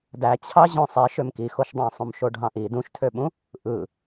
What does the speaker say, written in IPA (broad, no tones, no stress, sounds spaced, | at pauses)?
d æ t͡ɕʰ ɑ ʑ õ sˤ e ʃ ø m k i x o ʃ dˤ ɑ̃ sˤ ũ m ʃ o ɖʱ ɑ̃ ʔ i d ũ ʃ tʰ ø ɓ ũ | ʔ ɯ